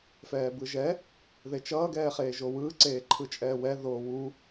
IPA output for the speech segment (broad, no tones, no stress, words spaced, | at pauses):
fɛːbɯʒɛ | ðet͡ʃʌː ɡɛːχeːʒowɯː ǀeːǃʰɯt͡ʃʼɛːwɛ ðoːwu